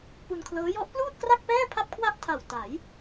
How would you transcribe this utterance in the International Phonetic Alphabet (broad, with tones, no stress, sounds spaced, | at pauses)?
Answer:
p u˧ n kʰ l ɤː˦˥ j ɔ˦˥ ʔ p l uː˥˩ t̚ k r a˥˩ k̚ p ɛː˥˩ pʰ a˥˩ p̚ kʰ w a˥˩ ʔ tʰ a˨˩ w t a˩˦ j